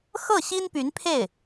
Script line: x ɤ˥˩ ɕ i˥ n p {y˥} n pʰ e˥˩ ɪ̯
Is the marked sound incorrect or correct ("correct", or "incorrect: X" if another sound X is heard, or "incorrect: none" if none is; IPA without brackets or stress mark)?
incorrect: y˧˥